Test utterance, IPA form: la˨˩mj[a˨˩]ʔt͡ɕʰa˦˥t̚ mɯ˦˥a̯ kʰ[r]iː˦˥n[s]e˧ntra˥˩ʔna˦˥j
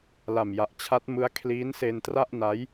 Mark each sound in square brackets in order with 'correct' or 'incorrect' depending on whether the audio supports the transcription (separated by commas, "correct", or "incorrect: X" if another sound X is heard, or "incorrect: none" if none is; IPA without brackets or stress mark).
correct, incorrect: l, correct